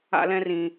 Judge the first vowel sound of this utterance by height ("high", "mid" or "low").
low